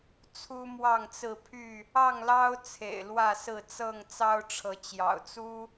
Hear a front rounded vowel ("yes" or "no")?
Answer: yes